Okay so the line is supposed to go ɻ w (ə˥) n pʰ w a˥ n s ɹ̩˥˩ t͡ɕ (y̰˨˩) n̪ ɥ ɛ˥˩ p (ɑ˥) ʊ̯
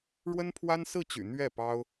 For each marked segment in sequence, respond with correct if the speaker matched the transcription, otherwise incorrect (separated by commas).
correct, correct, correct